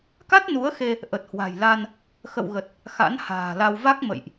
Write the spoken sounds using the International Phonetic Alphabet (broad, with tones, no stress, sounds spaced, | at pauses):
k a˦˥ t̚ n u˨˦ ə̯ x e˧ | ʔ ə˨˩ t̚ h w a̤˨˩ j l a˧ n | x ə̰˧˨ w ɣ ə˨˩ t̚ | x a̰˧˥ n h a̤ː˨˩ l a˧ w v a˦˥ k̚ m ə̰˧˨ j ʔ